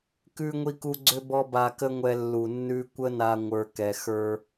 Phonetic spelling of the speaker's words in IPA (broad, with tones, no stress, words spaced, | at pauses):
kʉ˧ ŋʷi˧ku˧ ɡ͡ǀʏ˦bɔ˦ba˧ kə˦ŋʷɛ˧ lːu˨nːʉ˧ kʷə˦na˧ ŋʷə˞˧kɛ˧xə˞˦